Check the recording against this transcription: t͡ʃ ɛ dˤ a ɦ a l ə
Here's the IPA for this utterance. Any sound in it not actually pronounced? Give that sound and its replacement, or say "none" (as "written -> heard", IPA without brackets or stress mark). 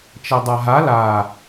ə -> a